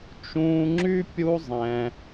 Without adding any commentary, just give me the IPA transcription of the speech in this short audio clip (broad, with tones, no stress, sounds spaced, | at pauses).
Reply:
t͡ʃ ũː˧ ŋ͡ǁ y˦ pʲ u˦ zˤ ɛ̃˧